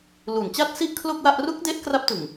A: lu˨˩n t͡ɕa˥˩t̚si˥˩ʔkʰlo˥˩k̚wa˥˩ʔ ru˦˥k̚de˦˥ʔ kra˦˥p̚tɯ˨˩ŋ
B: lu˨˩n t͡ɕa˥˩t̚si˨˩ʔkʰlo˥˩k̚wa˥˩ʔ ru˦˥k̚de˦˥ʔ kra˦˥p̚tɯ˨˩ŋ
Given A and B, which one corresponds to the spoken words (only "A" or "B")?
A